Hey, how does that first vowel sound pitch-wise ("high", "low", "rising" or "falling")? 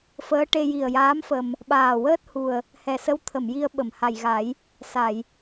rising